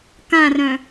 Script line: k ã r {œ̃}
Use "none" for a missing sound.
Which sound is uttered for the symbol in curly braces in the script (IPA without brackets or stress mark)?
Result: œ̃